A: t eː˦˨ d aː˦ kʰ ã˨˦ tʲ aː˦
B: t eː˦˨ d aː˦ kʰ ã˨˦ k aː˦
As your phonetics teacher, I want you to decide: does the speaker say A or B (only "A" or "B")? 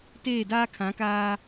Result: B